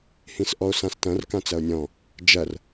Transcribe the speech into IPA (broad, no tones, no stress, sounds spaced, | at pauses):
h ĩ s ʔ ɔ o̯ s ã s t ɐ̃ r k ã t͡s ɐ o̯ nʲ ɔ̃ | d͡ʒ ɐ r